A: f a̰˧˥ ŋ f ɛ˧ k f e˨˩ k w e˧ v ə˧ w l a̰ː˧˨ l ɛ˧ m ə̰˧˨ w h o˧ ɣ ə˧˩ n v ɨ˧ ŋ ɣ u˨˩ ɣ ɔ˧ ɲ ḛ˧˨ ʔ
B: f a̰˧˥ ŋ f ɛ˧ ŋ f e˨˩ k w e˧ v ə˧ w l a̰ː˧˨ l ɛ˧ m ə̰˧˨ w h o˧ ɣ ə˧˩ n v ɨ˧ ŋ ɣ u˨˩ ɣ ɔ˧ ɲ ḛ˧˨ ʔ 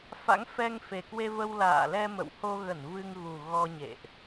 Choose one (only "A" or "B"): B